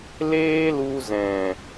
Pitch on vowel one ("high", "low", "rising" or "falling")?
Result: high